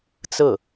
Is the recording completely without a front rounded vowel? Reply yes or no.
yes